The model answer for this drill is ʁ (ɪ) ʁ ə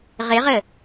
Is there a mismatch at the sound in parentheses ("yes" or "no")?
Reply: no